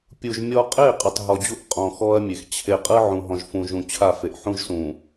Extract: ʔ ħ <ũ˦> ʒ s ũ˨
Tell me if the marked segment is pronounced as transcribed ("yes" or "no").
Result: yes